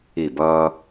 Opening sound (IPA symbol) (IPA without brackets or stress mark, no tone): i